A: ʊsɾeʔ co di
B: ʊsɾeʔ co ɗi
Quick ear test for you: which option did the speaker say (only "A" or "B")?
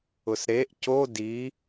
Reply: A